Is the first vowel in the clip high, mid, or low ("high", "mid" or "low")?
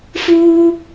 high